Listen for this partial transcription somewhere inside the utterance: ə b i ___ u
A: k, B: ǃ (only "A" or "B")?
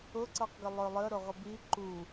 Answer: B